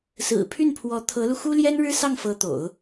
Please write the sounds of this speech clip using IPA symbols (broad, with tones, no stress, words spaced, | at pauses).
sɹ̩˨˩pʰy˥˩npʰwɔ˧˥ t̪ʰɤ˧˥lu˧ xu˥ljɛ˥nɻɻ̩˥sɑ˥˩ŋ fɤ˧˥t̪o̰˨˩˦ʊ̯